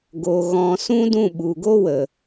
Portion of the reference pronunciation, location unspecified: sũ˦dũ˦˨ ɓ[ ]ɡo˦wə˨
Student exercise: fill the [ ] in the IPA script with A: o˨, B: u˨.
B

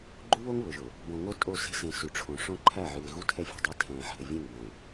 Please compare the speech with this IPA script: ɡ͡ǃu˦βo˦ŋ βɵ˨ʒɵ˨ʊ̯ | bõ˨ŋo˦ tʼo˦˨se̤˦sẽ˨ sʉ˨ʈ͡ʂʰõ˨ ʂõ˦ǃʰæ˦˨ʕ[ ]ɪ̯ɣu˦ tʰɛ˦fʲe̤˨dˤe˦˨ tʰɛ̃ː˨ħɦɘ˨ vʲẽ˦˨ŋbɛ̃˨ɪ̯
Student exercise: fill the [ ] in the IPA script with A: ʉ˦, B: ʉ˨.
B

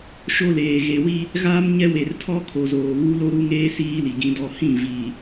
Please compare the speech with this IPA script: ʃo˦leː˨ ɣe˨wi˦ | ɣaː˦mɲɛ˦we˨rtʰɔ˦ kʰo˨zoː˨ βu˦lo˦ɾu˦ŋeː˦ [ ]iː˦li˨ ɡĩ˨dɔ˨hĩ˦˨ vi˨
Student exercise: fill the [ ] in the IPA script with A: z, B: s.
B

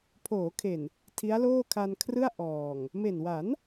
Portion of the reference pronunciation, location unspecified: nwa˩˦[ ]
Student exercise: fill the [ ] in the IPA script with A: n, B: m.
A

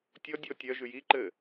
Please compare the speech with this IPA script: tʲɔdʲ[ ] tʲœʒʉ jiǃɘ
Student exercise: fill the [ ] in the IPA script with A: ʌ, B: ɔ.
B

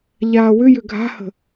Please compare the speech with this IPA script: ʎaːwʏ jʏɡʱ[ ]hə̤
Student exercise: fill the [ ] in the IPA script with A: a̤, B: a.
A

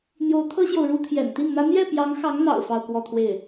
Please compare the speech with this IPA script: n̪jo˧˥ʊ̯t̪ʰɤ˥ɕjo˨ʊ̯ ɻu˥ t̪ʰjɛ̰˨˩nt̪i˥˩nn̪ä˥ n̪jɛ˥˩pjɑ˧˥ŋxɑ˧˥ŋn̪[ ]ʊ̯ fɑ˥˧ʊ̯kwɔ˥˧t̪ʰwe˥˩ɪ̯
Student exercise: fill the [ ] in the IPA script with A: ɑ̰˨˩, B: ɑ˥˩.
A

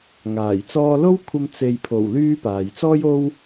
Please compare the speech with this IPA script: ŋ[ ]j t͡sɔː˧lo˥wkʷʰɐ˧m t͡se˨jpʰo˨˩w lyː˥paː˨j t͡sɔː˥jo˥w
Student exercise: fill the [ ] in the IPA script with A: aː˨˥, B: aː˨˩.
B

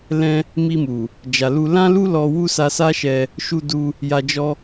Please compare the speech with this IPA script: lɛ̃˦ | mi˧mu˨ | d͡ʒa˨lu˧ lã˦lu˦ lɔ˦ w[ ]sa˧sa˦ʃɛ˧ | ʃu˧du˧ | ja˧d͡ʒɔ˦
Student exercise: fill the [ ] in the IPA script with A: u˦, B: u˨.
A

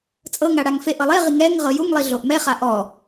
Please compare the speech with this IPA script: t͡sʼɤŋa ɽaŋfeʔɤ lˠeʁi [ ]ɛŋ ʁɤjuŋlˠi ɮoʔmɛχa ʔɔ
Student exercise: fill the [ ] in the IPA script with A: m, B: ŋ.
B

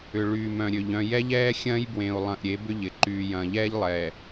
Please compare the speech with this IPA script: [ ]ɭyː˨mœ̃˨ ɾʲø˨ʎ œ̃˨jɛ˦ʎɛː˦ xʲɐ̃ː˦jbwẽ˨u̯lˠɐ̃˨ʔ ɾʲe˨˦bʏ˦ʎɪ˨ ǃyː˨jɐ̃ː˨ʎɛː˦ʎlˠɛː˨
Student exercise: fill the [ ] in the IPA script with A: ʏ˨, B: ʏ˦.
A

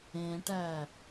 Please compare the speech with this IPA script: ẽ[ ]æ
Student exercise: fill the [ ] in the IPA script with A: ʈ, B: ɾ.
A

